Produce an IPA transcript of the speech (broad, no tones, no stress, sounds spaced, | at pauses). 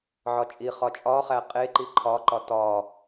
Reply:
ʕ ɒ t͡ʃʼ i χ ɒ t͡ʃʼ ɒ χ æ qʼ e ǃ i ǃʰ ɒ ǃ ɒ t ɒ